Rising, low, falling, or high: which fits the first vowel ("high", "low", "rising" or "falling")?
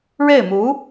falling